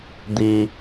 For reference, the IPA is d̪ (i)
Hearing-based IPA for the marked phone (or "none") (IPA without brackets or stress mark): i